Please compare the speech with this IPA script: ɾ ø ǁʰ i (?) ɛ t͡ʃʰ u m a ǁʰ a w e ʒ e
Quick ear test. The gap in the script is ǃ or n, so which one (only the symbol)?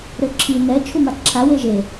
n